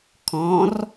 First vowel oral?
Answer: no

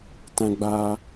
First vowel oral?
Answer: no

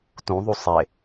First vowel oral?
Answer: no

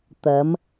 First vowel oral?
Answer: yes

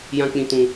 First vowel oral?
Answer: no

